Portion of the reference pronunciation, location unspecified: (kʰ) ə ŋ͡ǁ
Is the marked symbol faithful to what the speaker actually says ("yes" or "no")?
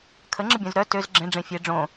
yes